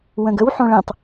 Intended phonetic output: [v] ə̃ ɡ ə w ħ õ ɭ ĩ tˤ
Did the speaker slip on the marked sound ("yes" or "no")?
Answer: yes